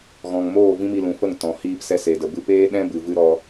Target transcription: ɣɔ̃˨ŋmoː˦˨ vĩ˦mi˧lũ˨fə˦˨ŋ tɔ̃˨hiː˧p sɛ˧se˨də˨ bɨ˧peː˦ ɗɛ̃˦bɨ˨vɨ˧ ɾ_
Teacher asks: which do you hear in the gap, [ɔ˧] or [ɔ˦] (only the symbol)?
ɔ˧